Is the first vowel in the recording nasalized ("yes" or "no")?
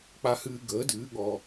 no